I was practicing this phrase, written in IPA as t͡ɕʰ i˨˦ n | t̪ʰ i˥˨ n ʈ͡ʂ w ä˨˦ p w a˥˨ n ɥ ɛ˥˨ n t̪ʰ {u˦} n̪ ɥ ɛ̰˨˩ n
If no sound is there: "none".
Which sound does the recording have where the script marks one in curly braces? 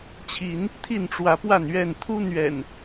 u˦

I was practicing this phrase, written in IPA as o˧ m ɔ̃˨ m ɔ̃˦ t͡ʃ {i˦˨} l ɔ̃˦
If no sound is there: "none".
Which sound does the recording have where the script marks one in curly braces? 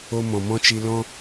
i˧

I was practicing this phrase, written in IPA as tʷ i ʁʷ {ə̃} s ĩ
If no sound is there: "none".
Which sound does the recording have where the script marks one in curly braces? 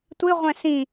ɛ̃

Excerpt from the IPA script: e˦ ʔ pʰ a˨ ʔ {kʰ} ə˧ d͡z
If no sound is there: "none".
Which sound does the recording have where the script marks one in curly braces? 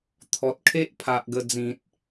ɡ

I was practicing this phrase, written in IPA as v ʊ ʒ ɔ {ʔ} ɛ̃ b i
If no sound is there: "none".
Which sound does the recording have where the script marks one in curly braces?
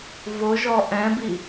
ʔ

